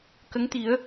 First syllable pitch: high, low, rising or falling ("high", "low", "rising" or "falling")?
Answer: rising